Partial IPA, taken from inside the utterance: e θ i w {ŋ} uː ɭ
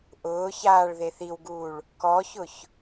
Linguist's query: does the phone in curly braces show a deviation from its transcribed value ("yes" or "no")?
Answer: yes